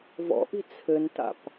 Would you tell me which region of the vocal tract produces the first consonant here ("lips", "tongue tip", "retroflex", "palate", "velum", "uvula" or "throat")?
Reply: lips